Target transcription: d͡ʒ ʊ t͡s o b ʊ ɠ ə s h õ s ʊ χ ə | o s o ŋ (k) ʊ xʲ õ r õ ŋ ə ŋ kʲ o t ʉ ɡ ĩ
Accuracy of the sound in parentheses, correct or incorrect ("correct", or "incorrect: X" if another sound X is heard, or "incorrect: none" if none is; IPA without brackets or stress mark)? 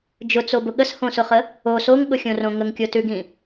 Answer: incorrect: ɠ